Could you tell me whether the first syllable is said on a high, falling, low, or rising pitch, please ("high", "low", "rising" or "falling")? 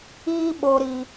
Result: high